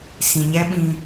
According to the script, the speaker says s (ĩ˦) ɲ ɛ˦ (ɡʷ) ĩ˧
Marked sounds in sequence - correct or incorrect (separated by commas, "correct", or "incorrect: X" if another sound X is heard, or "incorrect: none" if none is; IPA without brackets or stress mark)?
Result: incorrect: ĩ˨, incorrect: ɓ